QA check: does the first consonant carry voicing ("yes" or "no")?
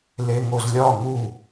yes